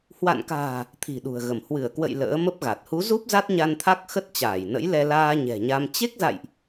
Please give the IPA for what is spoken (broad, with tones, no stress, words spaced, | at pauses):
hwa̰˧˨nka̤ː˨˩ | t̪ʰi̤˨˩ɗṳ˨˩ə̯ɣə˧˩m hwɨ˧˩ə̯kwə̰˧˨j lə̰ː˧˥mə˦˥p̚ɣa˨˩t̚ hu˨˦zu˦˥p̚ za˦˥t̚ɲa˧nt̪ʰa˦˥k̚ xə˦˥t̚t͡ɕaː˧˩jnə̰˧˥jlɛ˧ laː˧ ɲɛ̤˨˩ɲa˧m t͡ɕe˦˥k̚za̰˧˨jʔ